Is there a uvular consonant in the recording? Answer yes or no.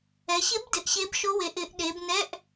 no